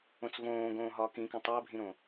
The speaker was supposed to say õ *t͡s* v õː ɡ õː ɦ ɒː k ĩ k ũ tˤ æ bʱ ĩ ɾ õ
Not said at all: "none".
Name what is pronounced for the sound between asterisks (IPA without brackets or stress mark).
t͡s